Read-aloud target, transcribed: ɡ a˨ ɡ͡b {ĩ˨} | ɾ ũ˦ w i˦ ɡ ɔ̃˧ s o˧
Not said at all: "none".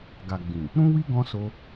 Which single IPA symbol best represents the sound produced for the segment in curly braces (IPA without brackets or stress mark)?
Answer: ĩ˨